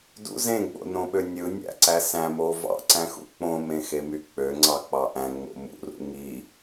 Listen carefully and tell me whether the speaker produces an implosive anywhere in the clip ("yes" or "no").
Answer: yes